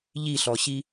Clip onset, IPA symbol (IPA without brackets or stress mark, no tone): ʎ